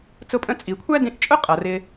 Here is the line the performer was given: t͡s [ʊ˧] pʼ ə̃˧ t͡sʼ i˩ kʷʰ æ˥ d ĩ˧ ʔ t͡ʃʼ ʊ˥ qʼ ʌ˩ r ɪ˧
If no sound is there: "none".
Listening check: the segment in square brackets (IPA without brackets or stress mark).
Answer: ʊ˧